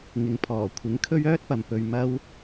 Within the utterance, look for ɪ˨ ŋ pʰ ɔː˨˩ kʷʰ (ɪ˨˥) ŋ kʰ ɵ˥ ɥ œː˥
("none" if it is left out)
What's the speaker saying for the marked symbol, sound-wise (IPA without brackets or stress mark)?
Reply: ɪ˨˥